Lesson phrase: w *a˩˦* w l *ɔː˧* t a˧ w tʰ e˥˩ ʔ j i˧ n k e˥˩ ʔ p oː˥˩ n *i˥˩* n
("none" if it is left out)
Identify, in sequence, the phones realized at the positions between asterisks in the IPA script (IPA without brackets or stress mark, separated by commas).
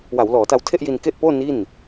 a˩˦, ɔː˩˦, i˥˩